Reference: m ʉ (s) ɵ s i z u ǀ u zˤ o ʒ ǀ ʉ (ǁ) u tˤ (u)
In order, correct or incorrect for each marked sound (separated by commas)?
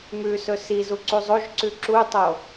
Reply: correct, correct, incorrect